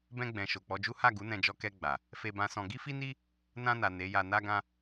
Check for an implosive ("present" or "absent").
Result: absent